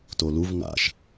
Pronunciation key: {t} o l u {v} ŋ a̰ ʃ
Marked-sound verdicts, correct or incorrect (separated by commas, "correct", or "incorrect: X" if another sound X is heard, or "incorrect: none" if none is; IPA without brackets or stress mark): correct, correct